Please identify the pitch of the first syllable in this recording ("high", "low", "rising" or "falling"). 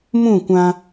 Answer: falling